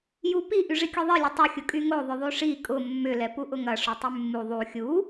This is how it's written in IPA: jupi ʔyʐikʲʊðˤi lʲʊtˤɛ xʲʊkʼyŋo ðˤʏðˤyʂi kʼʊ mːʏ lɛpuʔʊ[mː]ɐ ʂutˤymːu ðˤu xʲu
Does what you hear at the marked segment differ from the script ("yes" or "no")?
yes